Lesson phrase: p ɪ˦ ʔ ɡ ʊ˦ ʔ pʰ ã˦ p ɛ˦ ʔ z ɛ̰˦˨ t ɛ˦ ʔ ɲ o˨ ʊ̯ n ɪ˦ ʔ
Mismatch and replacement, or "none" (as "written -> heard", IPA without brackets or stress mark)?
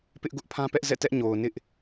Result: none